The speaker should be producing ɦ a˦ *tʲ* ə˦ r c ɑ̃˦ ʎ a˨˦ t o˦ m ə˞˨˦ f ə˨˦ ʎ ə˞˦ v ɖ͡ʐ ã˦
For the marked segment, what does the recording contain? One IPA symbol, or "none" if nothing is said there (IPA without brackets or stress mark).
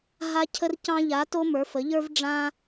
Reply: cʰ